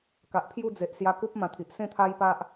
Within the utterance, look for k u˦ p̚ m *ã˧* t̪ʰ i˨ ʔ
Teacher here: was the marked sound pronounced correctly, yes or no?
yes